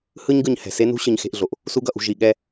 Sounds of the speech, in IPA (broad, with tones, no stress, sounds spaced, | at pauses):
h ɯ˥ ɲ ɡ ɯ˧ ɲ h ɛ̤˩ s e˥ n ṳ˥ ɕ ɯ˧ ɲ x e̤˧ ʔ ɮ o˩ ʔ | s u˥ ɡ ʌ˧ ʔ ṳ˧ ʒ i˧ ɠ ɛ˥